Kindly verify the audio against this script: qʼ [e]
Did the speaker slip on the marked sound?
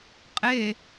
no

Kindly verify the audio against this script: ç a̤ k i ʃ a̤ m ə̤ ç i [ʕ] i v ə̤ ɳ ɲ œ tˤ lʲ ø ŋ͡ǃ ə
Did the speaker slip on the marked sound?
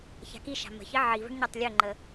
no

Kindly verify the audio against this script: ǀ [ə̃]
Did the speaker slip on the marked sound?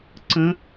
no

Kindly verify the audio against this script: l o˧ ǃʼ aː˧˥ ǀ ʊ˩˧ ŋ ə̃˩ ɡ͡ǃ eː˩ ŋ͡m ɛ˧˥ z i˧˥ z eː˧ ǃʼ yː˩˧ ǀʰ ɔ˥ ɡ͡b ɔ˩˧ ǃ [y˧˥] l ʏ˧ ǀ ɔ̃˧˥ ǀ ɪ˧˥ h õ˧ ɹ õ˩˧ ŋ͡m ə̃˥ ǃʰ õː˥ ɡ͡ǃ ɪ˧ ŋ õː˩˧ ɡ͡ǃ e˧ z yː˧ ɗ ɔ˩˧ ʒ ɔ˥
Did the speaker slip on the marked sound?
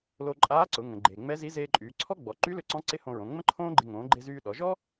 no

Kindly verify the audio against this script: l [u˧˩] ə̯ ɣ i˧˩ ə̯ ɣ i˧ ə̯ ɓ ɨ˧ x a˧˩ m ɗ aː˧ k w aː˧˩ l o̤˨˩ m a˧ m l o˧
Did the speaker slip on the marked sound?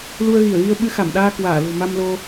yes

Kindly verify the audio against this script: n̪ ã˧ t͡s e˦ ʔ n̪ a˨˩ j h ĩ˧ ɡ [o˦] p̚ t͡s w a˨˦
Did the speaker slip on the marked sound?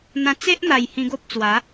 no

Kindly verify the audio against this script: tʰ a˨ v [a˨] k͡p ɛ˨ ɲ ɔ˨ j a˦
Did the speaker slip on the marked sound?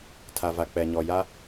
no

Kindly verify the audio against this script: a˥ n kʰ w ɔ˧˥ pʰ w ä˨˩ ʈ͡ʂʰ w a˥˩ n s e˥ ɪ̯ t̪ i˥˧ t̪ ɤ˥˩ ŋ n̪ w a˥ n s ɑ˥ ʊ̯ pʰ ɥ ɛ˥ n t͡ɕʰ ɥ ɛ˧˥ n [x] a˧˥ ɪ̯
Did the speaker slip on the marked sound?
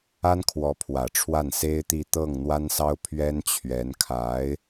yes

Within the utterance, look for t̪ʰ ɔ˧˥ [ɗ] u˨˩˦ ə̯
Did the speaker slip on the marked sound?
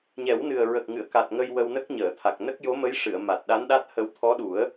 no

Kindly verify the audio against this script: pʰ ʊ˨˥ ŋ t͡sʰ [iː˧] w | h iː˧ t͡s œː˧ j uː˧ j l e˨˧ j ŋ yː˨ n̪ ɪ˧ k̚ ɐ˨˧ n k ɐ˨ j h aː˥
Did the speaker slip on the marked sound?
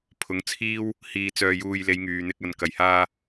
yes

